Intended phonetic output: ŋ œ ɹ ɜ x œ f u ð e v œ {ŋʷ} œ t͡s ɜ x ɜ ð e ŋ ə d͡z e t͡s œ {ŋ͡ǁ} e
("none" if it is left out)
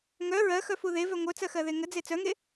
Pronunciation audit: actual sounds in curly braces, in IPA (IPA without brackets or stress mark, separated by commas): ŋʷ, ŋ